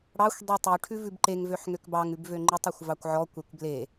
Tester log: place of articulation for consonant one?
retroflex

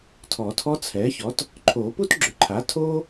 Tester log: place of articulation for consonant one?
alveolar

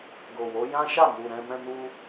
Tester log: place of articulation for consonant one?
velar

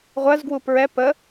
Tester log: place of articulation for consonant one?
uvular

